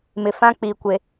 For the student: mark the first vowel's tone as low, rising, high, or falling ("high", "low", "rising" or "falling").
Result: low